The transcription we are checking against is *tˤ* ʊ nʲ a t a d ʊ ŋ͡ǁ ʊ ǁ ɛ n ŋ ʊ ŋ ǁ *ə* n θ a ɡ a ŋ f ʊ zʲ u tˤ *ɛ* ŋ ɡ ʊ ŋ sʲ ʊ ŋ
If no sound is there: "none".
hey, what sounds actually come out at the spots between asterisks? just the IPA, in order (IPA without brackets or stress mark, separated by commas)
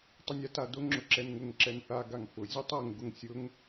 tˤ, ɛ, ɛ